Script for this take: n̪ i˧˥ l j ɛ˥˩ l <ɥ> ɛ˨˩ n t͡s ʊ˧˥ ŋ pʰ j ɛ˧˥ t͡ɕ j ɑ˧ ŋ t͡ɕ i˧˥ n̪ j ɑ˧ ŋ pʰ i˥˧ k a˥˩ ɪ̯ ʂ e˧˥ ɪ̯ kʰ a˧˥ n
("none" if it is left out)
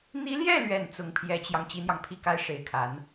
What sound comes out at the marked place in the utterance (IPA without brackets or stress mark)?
ɥ